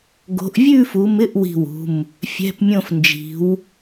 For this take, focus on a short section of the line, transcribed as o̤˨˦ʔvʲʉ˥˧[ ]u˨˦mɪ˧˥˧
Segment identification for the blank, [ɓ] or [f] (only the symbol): f